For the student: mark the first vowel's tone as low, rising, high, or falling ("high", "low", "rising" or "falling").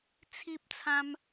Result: high